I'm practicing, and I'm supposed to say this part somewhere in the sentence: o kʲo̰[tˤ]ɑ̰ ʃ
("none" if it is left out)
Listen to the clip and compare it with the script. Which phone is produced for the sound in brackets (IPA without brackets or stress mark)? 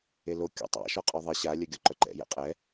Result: tˤ